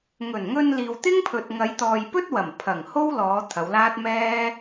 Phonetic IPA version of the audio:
ŋ ɵ˨˩ n ŋ ɵ˧ n l iː˨ w t̪ ɪ˥ ŋ pʰ ɵ˨ t̚ ŋ ɐ˨˧ j t̪ ɔː˨ j p ɵ˥ t̚ w ɐ˨˩ m pʰ ɐ˨˩ ŋ h o˥ w l ɔː˨˧ t̪ʰ ɐ˨˧ w l aː˥ t̚ m ɛː˥

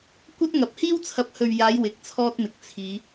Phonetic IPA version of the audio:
kʷ ɐ˥ t̚ ŋ ɐ˨ p̚ h iː˥ w t͡sʰ ɐ˨˥ p̚ h ɵ˨ ɥ j aː˨˧ j w ɪ˨ k̚ t͡sʰ ɔː˥ t̚ m ɪ˨ k̚ t͡sʰ iː˨˧

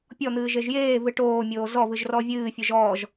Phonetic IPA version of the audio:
pʲ ɔ n̪ ɨː ʒ e ʒ j eː v ɨ ʈ oː mʲ oː z ɔ v ɨ ʒ r ɔ vʲ ɨː fʲ ɨ ʒ ɔː ʒ

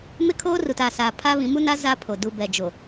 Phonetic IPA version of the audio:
m ɪ˦ kʰ oː˦ r u˨ t a˨ s aː˨ pʰ a˦ β ĩ˨˦ m u˦ n a˦ z a˦ pʰ o˨ d u˨ b ɛ˨ d͡ʒ o˨

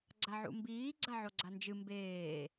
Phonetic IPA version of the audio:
ɡ͡ǀ a ʕ ṵ m b iː ɡ͡ǀ a ʕ o ɡ͡ǀ a n d͡ʒ ɨ m b eː

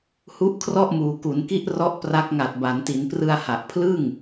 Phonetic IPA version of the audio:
h u˦˥ ʔ kʰ r ɔ˥˩ ʔ m uː˩˦ k u˩˦ n k i˦˥ ʔ r ɔ˦˥ ʔ p r a˦˥ k̚ ŋ a˨˩ t̚ b a˩˦ n t i˩˦ n p r ɯ˧ a̯ h a˨˩ ʔ pʰ l ɯ˥˩ ŋ

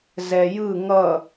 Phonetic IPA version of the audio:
z ɛ j ɯ ŋ ʌ

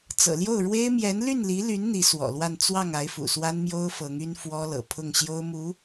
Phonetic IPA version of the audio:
t͡s ɤ̰˨˩ l j o˥˩ ʊ̯ ɻ w e˥ ɪ̯ m j ɛ˧˥ n l y˥˩ n l i˧˥ l y˧˥ n n̪ i˧˥ s w ɔ̰˨˩ l w a˥˧ n t͡s w ɑ˥˩ ŋ a˧˥ ɪ̯ f ṵ˨˩ s w a˥ n m j o˥ ʊ̯ f ɤ˧˥ ŋ y˥ n f w ɔ˥ l ɤ̰˨˩ pʰ ʊ˥˩ ŋ ɕ j o˥ ʊ̯ m u˧˥

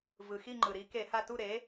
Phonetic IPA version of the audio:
v ɯ˩ x i˦˨ ŋ͡ǃ ɯ˩ ɾ i˨˥ k e˧˩˧ h a˦˨ t u˦˨ ɾ e˨˥

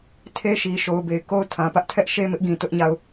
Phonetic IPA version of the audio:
tʰ e˦ ʃ i˨ ʃ o˨ ʊ̯ b e˨ ɪ̯ k o˦ ʊ̯ tʰ ã˨ p ä˦ ʔ tʰ ɛ˦ ʔ ʃ e˦ m ɪ˦ ʔ ɡ ĩ˨ t ʊ˦ ʔ ɲ a˦˨ ʊ̯

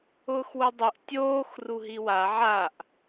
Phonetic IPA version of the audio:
ʊː x w u dˤ u ʔ tʲ oː x r u ɦ i w a ʕ a ʔ

